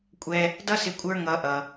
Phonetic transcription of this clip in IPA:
kʷʼɛ˧ | dʌ˥sɪ˧ kʷʼə˞˥ŋʌ˧ʔʌ˩

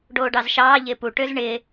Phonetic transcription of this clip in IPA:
ɖoːɖɑzʃɑː ʎɪːpu ʈøzɳɪː

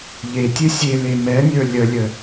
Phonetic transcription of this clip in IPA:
ʎe tʲɨsʲele mɛnʲə˞ lʲəlʲə

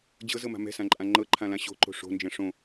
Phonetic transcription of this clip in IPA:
d͡ʑɤzɤma̤ mɛ̤sãǃʼã ŋ͡ǃɤǃʰãlã ɕo̤ǃo̤ ʂo̤nd͡ʒɛ̃ ʂõ

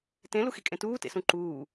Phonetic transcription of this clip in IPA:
tẽ luxikʼẽtuː tḛsũǃuː

